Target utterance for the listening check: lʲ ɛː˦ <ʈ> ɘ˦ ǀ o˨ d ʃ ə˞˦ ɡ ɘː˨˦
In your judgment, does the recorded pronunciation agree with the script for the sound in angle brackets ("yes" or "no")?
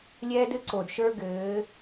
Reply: no